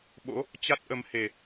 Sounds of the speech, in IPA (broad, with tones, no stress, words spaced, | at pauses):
ɓo̰˧˥ | t͡ɕa˦˥t̚ʔə˨˦m he˨˩